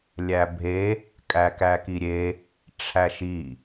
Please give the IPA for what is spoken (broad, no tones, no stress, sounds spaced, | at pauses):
lʲ æ bʱ e | kʼ æ k æ k i ɾʲ e | ʈ͡ʂʰ æ ʃ i